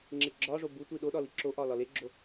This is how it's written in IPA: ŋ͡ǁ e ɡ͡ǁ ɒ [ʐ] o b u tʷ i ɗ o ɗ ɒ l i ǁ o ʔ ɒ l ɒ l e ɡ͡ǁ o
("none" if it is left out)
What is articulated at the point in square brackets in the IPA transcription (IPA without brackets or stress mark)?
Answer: ʐ